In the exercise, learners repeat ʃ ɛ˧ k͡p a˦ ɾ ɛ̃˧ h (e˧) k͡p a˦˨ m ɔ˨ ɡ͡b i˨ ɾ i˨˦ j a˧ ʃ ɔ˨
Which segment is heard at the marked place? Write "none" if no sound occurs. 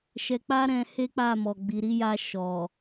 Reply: e˦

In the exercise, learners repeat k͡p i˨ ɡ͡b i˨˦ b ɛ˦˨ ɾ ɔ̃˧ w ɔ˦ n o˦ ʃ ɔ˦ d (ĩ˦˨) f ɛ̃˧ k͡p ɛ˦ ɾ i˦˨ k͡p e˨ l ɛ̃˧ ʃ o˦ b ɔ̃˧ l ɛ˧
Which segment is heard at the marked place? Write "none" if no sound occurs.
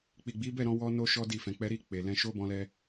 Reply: i˦˨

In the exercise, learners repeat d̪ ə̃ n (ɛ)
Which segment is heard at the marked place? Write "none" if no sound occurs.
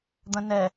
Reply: ɛ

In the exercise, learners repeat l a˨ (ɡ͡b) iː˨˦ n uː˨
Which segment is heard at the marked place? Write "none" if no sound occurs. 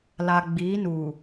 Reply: ɡ͡b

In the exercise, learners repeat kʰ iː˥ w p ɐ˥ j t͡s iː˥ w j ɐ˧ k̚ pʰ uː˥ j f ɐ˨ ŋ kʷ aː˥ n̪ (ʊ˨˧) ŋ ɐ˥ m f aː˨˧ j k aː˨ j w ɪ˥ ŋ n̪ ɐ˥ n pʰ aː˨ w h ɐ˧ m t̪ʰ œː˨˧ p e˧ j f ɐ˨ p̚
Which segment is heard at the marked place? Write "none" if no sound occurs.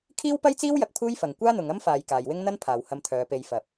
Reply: ʊ˨˧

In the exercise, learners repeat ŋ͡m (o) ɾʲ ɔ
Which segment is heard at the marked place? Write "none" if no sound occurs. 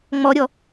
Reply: ɔ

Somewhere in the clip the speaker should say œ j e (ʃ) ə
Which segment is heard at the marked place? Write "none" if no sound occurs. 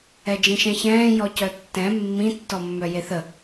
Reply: θ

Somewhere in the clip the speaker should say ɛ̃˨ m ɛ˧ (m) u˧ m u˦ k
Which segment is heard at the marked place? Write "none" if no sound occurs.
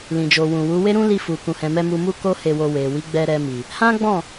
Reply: m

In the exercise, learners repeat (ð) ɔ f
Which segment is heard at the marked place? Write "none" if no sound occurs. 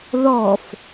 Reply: ð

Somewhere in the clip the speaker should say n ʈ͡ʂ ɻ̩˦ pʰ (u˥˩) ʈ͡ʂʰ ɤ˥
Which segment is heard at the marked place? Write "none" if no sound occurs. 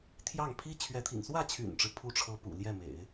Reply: u˥˩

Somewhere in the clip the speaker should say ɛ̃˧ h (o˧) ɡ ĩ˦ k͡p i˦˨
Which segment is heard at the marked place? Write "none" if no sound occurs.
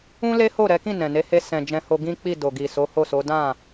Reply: o˧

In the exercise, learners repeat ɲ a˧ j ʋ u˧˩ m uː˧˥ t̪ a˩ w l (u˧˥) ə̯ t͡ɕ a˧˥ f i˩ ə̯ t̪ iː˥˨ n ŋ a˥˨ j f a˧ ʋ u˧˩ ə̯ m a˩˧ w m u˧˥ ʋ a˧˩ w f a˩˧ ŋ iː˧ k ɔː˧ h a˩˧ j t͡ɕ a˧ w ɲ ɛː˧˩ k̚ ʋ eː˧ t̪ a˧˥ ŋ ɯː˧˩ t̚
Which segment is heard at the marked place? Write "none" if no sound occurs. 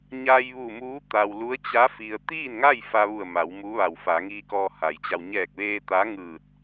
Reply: u˧˥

